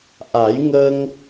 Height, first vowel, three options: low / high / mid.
low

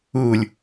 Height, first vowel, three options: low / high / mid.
high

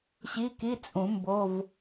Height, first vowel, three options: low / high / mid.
high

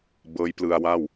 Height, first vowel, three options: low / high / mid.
mid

